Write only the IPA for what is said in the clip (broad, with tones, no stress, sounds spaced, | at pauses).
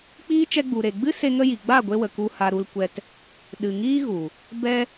k͡p iː˦ t͡ʃ ɛ˧ ɡ͡b u˨ ɾ e˨ ɡ͡b ɨ˦ s e˦ ŋ ə˦ j i˨ ɡ͡b a˦˨ ɡʷ e˧ w ə˨ k u˧ h a˧ ɾ u˧ l kʷ ɛ˧ t | ɗ ɨ˨ ŋ iː˦ ɣ u˨ | b ɛ˧